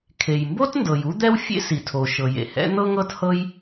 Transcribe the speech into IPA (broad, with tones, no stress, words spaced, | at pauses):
kʰe˩jmbo˥t ndɤ˩ju˥d̪ɛ˥wfʲḛ˥ si˩tʰo˩ ʃɤ˩jḛ˩hɛ̰˥ n̪ɤ˥ŋɤ˥t hɤ˥j